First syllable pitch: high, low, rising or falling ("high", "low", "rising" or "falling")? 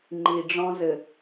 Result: low